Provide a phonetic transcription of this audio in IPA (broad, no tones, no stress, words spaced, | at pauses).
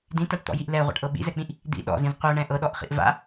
dĩtaʈt̪ɔ̰jiʔ lɛʁʷa̰ʈʔɤ ɓḭzɛk͡pĩʔ | d̪ḭ ɗɔ̰zĩz qʷɤɳɛ̃ ʔɤɗɔʔχḭʔ va̰